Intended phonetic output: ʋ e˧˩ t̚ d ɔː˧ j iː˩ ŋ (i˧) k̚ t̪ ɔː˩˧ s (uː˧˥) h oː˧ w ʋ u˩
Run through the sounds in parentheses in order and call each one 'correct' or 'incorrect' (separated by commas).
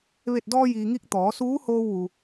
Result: correct, correct